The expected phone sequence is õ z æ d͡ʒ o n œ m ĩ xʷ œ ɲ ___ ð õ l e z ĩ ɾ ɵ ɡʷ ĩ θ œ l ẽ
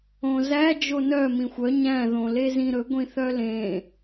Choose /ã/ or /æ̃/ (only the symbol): æ̃